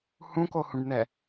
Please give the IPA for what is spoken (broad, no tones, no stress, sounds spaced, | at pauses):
h ũ k o h ũ ɖ n ɛ